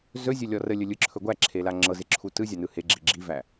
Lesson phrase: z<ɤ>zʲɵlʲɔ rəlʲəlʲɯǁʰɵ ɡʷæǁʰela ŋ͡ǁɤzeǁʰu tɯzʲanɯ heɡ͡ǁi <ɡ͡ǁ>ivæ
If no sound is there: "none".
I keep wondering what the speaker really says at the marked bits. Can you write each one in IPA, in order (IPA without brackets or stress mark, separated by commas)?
ɵ, ɡ͡ǁ